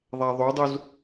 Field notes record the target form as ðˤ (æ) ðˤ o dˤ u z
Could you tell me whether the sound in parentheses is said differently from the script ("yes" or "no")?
no